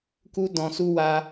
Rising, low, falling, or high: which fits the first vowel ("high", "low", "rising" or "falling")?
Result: high